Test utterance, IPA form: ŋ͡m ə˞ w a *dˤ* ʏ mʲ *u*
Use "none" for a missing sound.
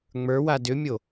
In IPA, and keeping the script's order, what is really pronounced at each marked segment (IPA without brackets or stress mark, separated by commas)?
d, o